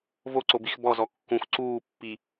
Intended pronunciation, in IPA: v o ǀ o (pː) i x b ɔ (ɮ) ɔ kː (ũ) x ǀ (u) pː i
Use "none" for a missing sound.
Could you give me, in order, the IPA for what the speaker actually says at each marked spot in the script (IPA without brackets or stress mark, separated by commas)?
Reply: b, z, ũ, uː